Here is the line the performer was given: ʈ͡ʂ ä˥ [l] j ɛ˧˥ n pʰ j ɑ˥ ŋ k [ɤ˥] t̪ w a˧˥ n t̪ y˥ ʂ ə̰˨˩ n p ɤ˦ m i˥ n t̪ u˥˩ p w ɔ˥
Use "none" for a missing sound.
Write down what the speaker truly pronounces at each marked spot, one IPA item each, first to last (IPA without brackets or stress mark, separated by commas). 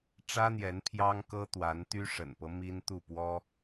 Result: n̪, ɤ˥